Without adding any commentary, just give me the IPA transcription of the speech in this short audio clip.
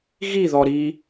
ɣ i ð ɔ ɾ i

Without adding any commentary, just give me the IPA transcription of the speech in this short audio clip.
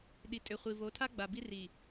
ɗ i˨ tʼ ʏ˨ χʷ i˨ v o˨˦ tʰ a˦ ɡ͡b a˨ b i˦ r i˨

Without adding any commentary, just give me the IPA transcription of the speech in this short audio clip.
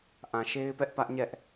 ʔ ã˨ ʃ e˦ ɪ̯ p ɛ˦ ʔ p ä˦ ʔ ɲ ɛ˦ ʔ

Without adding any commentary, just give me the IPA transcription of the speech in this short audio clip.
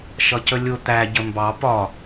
ʃ ʌ c ə lʲ ʊ t̪ æ ɟ ə m b ɑ p ɒ

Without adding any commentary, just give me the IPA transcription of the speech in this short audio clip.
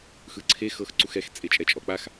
x ɯ ǀʰ e x ɤ x ǀ u x ɛ x t͡sʼ e t͡ʃʼ ɛ t͡ʃʼ ɔ k͡p a x

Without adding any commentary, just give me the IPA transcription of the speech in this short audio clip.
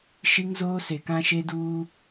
ʃ i˦ ŋ z oː˦ s e˨ k ã˦ ʃ e˦ d uː˦

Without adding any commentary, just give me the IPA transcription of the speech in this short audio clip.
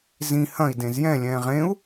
z ĩ h ɐ̃ i̯ d ẽ z j ɛ̃ lʲ ɛ̃ː ʁ ẽ u̯

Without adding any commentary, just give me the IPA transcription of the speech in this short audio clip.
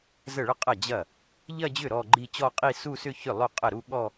z ə˥˩ ɭ ə˥˧ qʼ ɐ˥˩ d͡ʑ ɐ˥˩ | ʎ ɐ˥˧ d͡ʑ ʏ˥˩ ɾ ɔ˥˧ ɡ͡ǃ i˥˧ t͡ɕ ɔ˥˧ qʼ i˥˧ s u˥˧ s ʏ˥˧ ç ʏ˥˩ lˠ ʏ˥˩ qʼ ə˥˩ ɾ u˥˧ ɠ ɔ˥˧

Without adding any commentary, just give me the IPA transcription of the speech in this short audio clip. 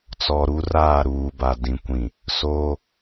t͡s ɔ˨ ɾ u˦ r aː˦˨ ɾ uː˨ b a˨ d ĩ˨ kʷ ĩ˨ | s oː˦

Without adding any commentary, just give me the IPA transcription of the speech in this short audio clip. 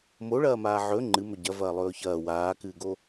m o ɭ ɐː m aː ʕ ɵ ŋ͡ǃ ɨ m ɵ ɟ ɐ v ɐː lˠ ɵː ç ɐː w aː k ɨː ɡ o

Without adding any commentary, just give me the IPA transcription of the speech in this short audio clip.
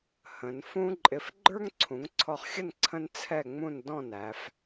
h ə̃˩˧ n f ũ˥ ǃʼ ɪ˧ f ɡ͡ǃ ə˞˥ ŋ ǀʰ ũ˩˧ ŋ ǀʰ ɔ˧ χ xʲ ə˥˧ n ǀʰ ə̃˥ n t͡sʰ ɛ˥˧ ŋ͡m ũ˥˧ n d ɔ̃˥˧ n æ˩˧ f

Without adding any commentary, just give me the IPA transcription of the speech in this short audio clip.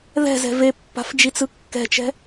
ð ɛ̤ z ɛ̤ v e pː a̤ f d͡ʒ i t͡s ɯ kː ɛ̤ t͡ʃ ɛ̤

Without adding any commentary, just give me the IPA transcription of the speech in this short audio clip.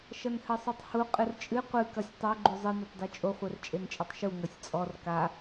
ʃ ɐ n h ɘ sˤ u tˤ h u qʼ ɨ r t͡ʃʼ ɨ qʷ ɨ k ɐ sʲ tˤ o ɡ͡ǃ u zˤ ɘ n ɛ tˤ d e t͡ʃʼ o χʷ ɛ r t͡ʃʼ e n t͡ʃʼ ɛ tˤ ʃ u ŋ ɐ sʲ t͡sʼ ɔ r k a

